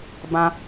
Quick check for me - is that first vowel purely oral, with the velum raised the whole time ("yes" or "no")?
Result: no